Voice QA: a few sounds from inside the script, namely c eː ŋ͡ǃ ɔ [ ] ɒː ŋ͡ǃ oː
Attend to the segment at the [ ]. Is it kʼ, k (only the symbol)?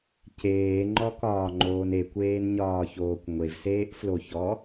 k